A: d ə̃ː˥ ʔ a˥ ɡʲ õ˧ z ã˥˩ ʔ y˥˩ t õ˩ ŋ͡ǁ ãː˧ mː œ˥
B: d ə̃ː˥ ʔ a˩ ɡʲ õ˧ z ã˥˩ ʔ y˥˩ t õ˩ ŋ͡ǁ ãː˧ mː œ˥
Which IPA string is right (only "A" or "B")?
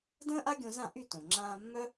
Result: A